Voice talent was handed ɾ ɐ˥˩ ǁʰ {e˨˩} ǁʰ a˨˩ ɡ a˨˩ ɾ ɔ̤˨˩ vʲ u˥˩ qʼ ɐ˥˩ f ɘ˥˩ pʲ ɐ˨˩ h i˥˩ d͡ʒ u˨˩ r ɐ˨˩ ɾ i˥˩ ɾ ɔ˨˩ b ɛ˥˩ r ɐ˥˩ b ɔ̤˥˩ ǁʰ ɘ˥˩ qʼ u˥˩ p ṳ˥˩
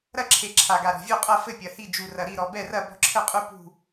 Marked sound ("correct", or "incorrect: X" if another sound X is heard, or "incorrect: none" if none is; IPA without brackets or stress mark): correct